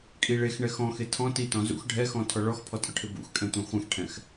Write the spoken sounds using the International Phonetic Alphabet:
kʼ i ɭ e x ɳ ɛ x ɔ̃ x e tʰ ɔ̃ t i t ɔ̃ z ṵ x ɖʱ ɛ x ɔ̃ tʰ ɔ ɭ ɔ x pʰ ɔ tʼ ʊ ʈʰ ɪ b ṵ x kʼ ɛ̃ tʷ ẽ χʷ ẽ x ʈʰ ɛ̃ x

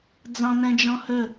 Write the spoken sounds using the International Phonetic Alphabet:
d͡z ɑ̃ n ɛ̃ d͡ʒ ɔ̃ h ɵ

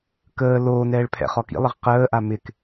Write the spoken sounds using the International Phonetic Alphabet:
k əː l oː n ɛː ɭ pʰ ɛ̰ χ ɔ k ḭ lˠ ɪ ʁ q əː ʔ a m ɪ k

